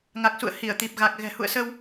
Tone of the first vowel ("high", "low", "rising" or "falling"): low